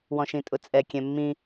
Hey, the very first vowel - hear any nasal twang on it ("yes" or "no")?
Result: yes